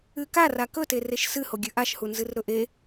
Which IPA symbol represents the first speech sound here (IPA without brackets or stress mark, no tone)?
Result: ɨ